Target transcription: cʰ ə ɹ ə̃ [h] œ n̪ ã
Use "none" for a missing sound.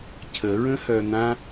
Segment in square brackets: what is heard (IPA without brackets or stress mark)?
h